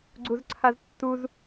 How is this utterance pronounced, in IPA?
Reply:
ɡ͡ǀ u z ǀʰ a z tː u z

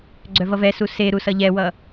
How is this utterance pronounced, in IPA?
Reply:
ɡ͡ǀ œ v ʌ v ɛ s u s e ɾ u s ʌ ʎ ɛ w ʌ

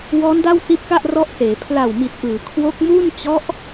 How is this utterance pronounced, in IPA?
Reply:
w ɔː˦˥ n d a˥˩ w s i˦˥ t̚ k a˥˩ ʔ r ɔ˦˥ ʔ s eː˩˦ pʰ l a˨˩ w m i˨˩ t̚ ʔ ɯː˩˦ kʰ w o˦˥ k̚ m uː˥˩ n t͡ɕ ɔ˦˥ ʔ

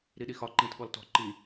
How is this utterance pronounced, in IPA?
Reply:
ɾ i ɗ i x ɒ ǃ ĩ t ɠ ɔ l t ɔ̤ ǃ i

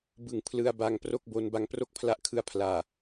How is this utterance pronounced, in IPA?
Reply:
b ɯ˨˩ ŋ pʰ l ɯ˧ a̯ b a˧ ŋ p r o˥˩ k̚ b o˧ n b a˧ ŋ p r o˥˩ k̚ pʰ l a˦˥ ʔ kʰ ɯ˧ a̯ pʰ l aː˨˩

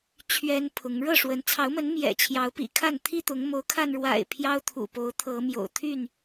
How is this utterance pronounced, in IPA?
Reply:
t͡ɕʰ ɥ ɛ˦ n pʰ ʊ˨˦ ŋ ɻ ɤ˥˨ ʂ w ə˨˦ n t͡sʰ ɑ˨˦ ʊ̯ m ə˨˦ n m j ɛ̰˨˩ t͡ɕʰ j ɑ˨˦ ʊ̯ p ḭ˨˩ kʰ a˥˨ n t̪ʰ i˥˨ t̪ ʊ˨˦ ŋ m o˨˦ ʊ̯ kʰ a˧ n ɻ w a̰˨˩ ɪ̯ pʰ j ɑ˦ ʊ̯ t̪ʰ ṵ˨˩ p o˨˦ ʊ̯ t̪ʰ ɤ˨˦ m j o̰˨˩ ʊ̯ t̪ʰ y˥˨ n

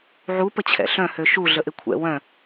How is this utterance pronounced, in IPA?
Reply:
ʕ u p ə t͡ɕʰ ɛ̰ ɬ œ̃ h ø ʃ u ɮ ə ʔ ɪ kʷʰ ɛ̰ w œ̃

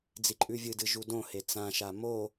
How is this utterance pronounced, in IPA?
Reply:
d͡z i ǃʼ ʉ vʲ ɨ d ɨ ʒ u d õ h e t͡s ã ʃ a m o

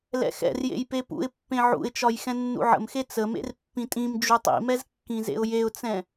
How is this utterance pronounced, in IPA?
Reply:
l ɛ̰ x ɛ̰ r j ḛ j p e p ṵ ɪ̯ pː ẽ ʕ ṵ ɪ̯ t͡ʃ ɒ j x ɛ̃ nː ṵ ʕ ə̰ m x e t͡s ə m ḛ r pː ĩ tʼ ĩ m d͡ʒ u tˤ ḭ m ɛ z kː ĩ z ḛ ʊ̯ j e ʊ̯ t͡s ɛ̃

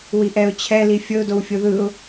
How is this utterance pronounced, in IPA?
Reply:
w i ʔ ɛ ʊ̯ t͡ɕʰ ɛ l i fʲ ɤ ʊ̯ d o w fʲ o ð ɯ ʊ̯

